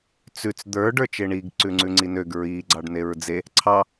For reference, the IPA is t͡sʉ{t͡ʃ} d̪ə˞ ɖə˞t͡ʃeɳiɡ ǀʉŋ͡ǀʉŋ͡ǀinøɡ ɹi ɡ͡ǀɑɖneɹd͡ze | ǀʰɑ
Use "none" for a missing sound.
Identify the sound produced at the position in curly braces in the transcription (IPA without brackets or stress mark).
t͡s